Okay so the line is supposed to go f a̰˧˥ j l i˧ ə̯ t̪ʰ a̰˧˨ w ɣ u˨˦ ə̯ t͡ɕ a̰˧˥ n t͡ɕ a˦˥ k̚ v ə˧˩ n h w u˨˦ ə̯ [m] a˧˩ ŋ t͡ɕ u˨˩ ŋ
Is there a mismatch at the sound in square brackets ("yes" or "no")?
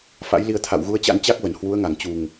yes